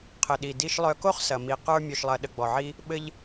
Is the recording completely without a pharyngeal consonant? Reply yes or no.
no